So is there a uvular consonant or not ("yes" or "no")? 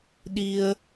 no